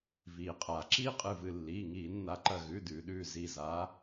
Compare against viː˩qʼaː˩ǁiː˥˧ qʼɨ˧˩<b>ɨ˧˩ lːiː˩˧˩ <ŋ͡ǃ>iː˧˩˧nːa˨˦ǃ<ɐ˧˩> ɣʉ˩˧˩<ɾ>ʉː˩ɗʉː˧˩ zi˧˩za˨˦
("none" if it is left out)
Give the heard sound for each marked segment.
v, ŋ, ɐ˧˩, d

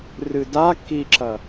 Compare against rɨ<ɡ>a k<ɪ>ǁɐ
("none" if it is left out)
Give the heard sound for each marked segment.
d, i

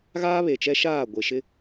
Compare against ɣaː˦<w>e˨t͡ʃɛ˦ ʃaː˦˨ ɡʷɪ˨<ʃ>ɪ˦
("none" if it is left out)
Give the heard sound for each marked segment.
β, ʃ

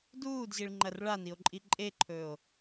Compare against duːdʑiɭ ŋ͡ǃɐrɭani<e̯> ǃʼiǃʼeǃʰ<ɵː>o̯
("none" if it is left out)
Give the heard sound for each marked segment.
o̯, ɵː

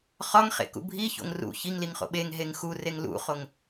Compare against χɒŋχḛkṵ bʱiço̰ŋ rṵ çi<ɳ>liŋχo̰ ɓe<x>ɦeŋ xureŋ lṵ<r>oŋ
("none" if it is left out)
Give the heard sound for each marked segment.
ŋ, ŋ, χ

